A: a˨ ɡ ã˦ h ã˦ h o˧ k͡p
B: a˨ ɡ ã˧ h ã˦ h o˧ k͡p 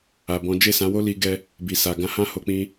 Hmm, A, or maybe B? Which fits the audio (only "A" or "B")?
B